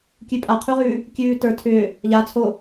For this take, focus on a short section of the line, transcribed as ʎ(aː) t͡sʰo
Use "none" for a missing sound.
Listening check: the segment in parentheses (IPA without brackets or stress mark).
a